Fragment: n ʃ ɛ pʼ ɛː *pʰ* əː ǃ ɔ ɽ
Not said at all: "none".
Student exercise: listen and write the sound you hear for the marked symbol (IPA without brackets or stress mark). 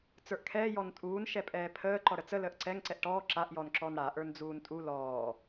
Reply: pʰ